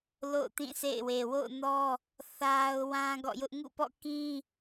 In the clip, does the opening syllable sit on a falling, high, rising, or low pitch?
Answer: falling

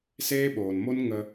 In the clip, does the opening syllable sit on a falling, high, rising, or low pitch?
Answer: high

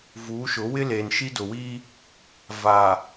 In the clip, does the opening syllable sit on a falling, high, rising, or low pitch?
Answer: rising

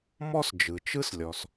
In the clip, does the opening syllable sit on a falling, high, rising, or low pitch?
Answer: high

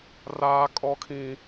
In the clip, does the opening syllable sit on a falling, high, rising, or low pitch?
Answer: high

